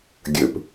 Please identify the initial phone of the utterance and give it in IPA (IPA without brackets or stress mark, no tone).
ɡʲ